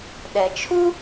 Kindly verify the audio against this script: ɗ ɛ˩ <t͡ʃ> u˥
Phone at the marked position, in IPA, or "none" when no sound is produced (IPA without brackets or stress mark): t͡ʃʰ